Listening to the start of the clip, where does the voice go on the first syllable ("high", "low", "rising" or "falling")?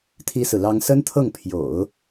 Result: high